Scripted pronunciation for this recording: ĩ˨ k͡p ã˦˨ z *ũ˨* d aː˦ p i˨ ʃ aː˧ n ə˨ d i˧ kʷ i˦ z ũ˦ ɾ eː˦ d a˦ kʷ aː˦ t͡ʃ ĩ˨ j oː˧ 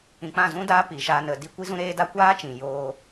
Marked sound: incorrect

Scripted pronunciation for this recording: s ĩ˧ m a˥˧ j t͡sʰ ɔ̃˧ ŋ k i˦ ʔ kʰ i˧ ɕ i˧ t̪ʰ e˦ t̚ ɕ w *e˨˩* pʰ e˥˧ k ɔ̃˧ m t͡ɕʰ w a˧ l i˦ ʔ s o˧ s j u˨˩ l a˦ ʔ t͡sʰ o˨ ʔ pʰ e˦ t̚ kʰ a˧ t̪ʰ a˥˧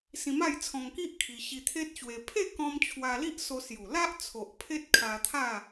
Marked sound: incorrect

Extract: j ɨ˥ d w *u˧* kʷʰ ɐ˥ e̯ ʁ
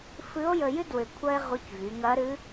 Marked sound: incorrect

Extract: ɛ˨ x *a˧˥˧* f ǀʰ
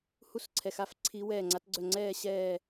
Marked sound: correct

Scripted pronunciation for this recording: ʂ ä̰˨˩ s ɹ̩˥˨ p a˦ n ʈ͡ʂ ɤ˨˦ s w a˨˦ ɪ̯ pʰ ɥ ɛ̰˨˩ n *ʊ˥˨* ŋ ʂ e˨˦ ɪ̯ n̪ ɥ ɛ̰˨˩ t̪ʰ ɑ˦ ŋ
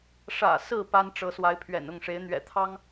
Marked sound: correct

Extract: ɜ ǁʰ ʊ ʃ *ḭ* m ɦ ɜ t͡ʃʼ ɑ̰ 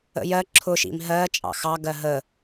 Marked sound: correct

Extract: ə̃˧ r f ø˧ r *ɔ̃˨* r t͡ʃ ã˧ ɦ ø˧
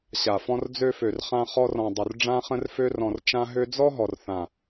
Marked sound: correct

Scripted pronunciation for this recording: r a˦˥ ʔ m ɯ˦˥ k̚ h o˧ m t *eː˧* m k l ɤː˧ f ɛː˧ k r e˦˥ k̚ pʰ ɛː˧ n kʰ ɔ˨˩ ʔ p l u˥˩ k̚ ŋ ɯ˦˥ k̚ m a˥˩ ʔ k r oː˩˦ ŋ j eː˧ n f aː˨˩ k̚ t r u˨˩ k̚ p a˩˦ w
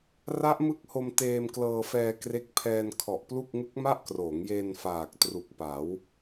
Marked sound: correct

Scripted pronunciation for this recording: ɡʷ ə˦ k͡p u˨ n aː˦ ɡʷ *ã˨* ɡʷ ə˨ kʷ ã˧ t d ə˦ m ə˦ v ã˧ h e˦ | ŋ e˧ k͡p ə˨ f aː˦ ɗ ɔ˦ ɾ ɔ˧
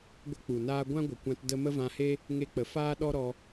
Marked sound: incorrect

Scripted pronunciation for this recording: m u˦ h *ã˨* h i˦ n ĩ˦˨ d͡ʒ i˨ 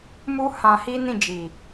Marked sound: incorrect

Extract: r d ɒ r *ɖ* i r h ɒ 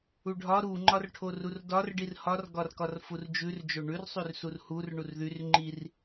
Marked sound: correct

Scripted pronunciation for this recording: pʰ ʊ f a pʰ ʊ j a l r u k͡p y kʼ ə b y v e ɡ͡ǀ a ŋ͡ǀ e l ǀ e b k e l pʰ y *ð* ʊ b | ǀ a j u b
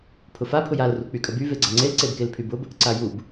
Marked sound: incorrect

